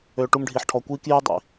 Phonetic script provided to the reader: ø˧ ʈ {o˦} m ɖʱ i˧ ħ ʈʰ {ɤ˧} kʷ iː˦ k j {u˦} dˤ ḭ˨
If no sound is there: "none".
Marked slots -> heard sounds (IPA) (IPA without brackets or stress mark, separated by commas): u˦, ɔ˧, y˦